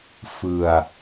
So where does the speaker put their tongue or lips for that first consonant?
lips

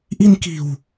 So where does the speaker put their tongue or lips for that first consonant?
throat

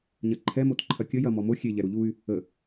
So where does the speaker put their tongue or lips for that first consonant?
palate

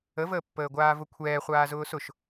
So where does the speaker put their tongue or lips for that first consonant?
lips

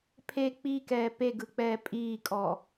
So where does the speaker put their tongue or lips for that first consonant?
lips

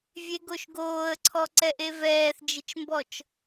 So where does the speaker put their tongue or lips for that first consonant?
lips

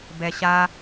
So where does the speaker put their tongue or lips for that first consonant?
lips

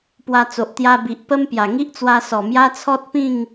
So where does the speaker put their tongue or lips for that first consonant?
lips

